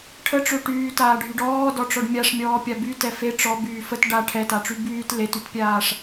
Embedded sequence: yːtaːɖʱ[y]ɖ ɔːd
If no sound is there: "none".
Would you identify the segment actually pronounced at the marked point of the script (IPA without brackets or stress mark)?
y